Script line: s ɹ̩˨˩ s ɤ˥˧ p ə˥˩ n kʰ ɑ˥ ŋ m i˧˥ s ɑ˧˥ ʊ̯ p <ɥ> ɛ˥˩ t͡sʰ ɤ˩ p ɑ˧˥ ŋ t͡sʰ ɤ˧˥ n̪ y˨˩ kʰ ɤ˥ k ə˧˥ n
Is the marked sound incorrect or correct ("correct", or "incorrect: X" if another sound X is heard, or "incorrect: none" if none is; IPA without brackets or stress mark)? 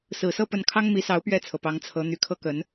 correct